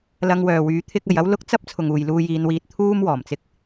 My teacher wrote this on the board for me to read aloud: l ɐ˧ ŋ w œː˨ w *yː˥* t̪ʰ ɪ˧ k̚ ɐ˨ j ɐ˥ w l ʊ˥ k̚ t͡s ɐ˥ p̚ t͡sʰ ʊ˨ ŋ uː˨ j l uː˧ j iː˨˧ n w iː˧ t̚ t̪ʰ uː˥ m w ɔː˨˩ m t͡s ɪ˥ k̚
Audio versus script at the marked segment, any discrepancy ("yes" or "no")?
yes